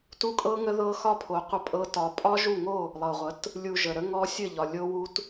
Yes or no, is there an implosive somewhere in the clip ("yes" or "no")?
no